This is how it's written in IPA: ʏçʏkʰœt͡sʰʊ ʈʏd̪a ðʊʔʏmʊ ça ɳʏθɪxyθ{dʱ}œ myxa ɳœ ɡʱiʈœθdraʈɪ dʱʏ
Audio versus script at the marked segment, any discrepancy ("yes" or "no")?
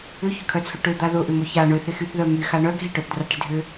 yes